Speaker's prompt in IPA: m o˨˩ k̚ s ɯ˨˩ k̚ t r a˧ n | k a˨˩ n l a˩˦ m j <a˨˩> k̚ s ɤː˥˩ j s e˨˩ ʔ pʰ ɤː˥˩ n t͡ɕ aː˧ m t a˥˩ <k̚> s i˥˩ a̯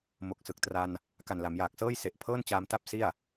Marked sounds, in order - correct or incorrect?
incorrect: aː˨˩, incorrect: p̚

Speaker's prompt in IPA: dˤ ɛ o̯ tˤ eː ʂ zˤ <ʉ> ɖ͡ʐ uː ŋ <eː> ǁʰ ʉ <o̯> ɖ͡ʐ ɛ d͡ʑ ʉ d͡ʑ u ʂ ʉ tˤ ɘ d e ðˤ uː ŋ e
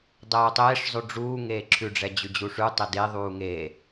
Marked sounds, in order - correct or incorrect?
correct, correct, incorrect: none

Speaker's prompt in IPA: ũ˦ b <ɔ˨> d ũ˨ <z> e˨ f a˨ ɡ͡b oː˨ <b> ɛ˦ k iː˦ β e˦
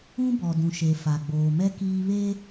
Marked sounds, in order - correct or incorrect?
correct, incorrect: ʃ, incorrect: m

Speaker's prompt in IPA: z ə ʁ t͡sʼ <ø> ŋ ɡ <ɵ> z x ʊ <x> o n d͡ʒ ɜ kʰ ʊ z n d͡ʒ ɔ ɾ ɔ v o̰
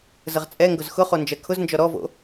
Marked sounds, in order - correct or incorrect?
incorrect: ɛ, incorrect: ʊ, incorrect: χ

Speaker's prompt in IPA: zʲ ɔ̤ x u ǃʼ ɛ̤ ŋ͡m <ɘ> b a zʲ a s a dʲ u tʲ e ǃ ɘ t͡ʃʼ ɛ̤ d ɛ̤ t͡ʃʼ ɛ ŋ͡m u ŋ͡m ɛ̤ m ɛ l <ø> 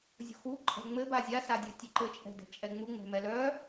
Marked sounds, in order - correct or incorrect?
correct, incorrect: œ

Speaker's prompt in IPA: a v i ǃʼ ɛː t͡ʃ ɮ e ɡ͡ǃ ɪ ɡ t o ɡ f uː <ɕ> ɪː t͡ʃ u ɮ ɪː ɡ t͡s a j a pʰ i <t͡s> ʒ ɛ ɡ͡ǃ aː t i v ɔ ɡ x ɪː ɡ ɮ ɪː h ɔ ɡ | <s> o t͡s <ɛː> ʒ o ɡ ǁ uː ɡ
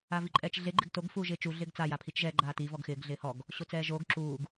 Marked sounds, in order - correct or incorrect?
incorrect: ʒ, incorrect: t͡ʃ, incorrect: ɕ, correct

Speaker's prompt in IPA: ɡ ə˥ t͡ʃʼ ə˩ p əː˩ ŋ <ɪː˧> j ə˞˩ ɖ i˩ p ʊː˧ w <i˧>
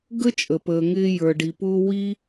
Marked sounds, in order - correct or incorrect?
correct, correct

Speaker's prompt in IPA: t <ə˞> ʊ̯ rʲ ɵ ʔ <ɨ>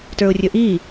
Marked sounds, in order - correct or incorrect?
correct, incorrect: i

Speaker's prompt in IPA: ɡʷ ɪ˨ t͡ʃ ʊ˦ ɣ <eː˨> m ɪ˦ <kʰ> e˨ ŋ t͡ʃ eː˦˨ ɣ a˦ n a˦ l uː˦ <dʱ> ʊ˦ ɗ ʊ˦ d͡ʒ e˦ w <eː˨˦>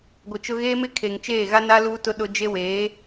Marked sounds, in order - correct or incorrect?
incorrect: eː˦, correct, incorrect: t, correct

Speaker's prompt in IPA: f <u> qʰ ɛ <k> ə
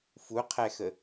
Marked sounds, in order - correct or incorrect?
correct, incorrect: x

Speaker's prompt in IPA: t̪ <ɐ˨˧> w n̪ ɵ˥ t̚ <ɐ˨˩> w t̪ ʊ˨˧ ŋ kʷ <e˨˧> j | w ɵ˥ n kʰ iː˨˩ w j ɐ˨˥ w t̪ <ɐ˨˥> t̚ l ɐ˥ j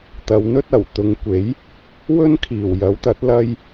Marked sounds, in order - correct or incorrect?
correct, correct, incorrect: e˨˥, correct

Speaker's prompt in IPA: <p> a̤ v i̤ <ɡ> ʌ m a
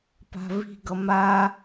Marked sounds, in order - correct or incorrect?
correct, correct

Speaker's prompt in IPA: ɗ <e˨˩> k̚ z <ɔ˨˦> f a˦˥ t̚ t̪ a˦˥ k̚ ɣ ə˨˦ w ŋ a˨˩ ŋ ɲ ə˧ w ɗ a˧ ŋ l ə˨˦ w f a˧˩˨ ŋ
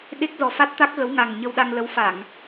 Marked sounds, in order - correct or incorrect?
incorrect: e˦˥, incorrect: ɔ˨˩

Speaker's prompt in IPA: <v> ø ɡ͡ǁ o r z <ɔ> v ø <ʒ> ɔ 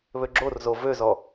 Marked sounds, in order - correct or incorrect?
incorrect: β, incorrect: o, incorrect: z

